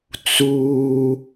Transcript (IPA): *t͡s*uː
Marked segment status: correct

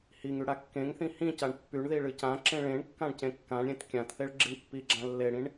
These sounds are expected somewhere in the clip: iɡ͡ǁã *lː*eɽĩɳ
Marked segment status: correct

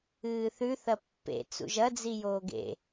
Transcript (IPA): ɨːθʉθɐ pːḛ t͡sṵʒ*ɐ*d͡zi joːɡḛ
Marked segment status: correct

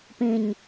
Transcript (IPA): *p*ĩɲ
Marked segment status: correct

